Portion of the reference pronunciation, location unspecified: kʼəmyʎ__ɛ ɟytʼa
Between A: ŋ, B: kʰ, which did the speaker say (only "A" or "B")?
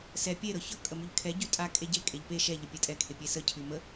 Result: B